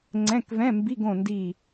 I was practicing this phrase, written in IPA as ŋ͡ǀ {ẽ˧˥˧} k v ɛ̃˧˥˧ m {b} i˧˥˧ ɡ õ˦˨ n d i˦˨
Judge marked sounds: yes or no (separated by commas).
no, yes